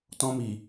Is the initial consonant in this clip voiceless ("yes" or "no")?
yes